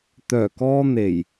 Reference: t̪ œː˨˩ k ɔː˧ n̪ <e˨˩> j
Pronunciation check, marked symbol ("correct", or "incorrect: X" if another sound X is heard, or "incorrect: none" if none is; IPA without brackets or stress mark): correct